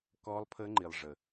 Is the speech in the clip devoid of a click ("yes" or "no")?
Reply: no